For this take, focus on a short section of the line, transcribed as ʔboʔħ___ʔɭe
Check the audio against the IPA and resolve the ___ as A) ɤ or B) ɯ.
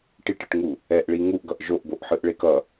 B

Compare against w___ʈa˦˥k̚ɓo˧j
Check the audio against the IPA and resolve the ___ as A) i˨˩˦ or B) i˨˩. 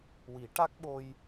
A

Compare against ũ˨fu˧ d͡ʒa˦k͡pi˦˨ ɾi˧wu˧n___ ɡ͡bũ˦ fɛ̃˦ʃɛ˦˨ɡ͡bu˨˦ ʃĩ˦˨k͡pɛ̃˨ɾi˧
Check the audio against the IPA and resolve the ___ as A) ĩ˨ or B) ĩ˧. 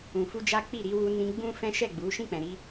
B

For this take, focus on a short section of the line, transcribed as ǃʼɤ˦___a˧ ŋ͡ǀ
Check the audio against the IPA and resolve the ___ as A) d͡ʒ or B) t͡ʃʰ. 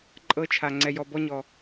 B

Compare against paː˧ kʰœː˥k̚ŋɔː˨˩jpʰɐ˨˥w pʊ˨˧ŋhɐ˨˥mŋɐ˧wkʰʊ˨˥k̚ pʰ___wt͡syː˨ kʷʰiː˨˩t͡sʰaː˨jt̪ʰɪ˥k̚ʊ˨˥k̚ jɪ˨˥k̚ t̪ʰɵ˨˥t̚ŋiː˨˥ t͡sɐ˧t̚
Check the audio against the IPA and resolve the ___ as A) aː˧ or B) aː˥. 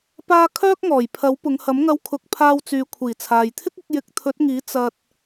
A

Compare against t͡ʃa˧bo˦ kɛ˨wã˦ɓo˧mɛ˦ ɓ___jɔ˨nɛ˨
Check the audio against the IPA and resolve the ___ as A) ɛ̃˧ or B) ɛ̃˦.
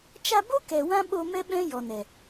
B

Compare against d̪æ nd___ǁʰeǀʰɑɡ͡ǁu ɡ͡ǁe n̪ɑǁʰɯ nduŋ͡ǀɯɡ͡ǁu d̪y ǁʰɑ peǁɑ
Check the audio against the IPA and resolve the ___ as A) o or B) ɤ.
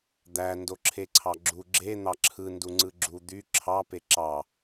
A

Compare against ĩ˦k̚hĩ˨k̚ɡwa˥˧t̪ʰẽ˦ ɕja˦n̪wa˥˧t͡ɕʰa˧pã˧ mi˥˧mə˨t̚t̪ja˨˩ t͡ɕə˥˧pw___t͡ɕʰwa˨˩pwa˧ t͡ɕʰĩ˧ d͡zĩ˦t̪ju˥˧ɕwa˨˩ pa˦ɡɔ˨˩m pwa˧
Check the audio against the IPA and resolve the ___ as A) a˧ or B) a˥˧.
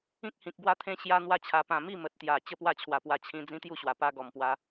B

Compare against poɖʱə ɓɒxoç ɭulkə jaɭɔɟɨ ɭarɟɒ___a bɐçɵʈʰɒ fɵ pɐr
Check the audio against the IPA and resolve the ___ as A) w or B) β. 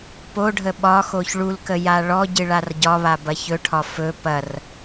B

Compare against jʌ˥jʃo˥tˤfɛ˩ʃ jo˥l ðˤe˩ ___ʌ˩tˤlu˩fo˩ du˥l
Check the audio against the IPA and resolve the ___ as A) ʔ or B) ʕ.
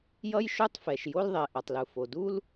A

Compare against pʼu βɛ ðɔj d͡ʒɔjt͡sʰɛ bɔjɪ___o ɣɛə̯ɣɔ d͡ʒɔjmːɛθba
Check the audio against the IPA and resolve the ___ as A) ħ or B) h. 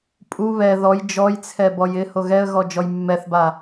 B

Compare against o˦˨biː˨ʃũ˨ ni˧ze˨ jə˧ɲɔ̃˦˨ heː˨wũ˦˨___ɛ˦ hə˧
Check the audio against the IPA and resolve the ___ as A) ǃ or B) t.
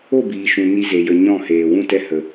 B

